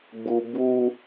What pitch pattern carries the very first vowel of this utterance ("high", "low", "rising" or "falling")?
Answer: low